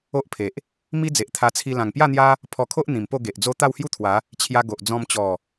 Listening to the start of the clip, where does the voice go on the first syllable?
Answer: high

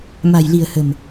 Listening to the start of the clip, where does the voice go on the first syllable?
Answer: low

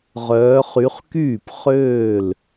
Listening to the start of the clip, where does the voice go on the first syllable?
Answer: rising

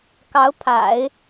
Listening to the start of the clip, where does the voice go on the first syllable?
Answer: rising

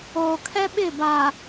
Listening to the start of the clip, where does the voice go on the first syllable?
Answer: low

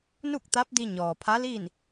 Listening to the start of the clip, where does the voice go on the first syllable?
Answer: falling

